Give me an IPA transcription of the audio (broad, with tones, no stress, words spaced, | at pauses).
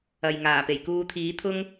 ɐ˨jŋaː˨˩pe˨˩j kuː˧t̪ʰiː˨˥t̪ʰʊ˥ŋ